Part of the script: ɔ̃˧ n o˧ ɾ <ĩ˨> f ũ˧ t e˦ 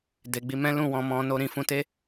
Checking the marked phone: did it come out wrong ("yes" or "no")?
no